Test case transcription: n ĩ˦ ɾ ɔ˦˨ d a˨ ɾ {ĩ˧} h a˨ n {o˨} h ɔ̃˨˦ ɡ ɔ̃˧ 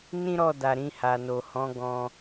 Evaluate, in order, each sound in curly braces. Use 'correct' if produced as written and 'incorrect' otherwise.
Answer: correct, correct

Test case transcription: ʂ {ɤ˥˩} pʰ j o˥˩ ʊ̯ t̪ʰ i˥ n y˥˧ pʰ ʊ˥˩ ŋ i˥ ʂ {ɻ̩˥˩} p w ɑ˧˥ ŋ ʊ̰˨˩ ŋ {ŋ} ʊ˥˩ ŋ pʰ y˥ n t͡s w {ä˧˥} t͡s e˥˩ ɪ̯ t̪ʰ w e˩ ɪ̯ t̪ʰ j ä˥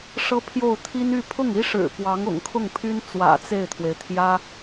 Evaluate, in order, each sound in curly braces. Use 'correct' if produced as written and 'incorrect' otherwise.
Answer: incorrect, incorrect, incorrect, incorrect

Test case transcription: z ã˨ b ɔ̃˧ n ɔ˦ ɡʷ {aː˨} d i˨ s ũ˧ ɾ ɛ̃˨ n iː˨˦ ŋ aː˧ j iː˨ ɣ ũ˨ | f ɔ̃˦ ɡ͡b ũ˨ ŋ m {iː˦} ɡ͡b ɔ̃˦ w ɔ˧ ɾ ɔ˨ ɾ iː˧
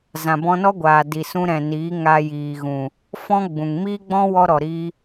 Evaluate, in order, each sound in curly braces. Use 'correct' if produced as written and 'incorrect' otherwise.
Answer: correct, correct

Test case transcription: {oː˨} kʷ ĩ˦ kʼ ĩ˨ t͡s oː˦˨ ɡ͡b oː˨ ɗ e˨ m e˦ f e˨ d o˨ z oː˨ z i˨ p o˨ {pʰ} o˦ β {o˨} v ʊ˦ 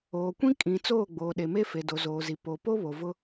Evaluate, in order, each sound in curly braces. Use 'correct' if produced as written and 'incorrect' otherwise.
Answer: correct, incorrect, correct

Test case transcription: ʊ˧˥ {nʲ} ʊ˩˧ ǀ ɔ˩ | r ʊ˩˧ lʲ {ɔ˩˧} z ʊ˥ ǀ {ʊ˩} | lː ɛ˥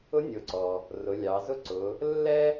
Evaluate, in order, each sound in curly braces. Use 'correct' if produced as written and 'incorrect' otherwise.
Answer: correct, incorrect, incorrect

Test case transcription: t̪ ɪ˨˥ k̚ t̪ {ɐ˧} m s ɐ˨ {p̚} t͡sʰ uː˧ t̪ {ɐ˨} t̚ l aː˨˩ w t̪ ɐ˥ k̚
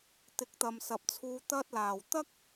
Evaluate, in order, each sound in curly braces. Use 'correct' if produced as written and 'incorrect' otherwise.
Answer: incorrect, correct, incorrect

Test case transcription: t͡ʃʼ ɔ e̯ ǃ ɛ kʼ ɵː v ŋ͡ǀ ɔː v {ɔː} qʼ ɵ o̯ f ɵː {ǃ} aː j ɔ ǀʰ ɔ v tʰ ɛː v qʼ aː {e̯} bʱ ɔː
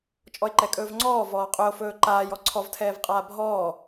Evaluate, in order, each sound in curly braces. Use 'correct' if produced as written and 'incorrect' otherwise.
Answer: correct, correct, incorrect

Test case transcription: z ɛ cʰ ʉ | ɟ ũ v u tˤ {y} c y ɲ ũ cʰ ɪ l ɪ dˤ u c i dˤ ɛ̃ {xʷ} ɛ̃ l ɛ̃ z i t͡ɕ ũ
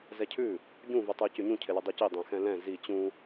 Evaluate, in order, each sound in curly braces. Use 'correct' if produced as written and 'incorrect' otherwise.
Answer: incorrect, incorrect

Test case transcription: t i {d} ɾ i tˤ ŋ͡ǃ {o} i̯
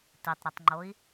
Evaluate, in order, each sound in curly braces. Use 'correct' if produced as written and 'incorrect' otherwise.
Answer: incorrect, correct

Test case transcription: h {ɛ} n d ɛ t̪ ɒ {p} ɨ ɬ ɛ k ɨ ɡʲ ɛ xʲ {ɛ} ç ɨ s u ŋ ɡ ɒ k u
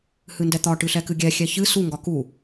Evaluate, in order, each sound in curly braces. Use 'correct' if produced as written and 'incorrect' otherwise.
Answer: incorrect, incorrect, correct

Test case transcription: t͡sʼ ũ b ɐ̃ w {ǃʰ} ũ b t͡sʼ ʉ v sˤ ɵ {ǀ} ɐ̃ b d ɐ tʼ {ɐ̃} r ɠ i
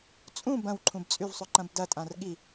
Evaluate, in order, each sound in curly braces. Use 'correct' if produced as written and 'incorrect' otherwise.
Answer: correct, incorrect, incorrect

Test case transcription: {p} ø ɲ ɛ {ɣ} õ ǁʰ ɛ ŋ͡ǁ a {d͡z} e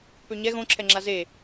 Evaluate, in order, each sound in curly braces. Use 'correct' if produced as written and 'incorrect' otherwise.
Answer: correct, correct, incorrect

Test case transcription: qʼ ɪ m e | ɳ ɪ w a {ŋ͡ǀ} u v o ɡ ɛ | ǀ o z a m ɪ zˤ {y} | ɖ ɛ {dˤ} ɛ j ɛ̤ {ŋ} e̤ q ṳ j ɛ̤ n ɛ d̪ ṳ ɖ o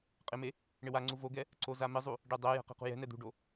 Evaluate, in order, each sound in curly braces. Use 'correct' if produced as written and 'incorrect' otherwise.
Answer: correct, incorrect, correct, incorrect

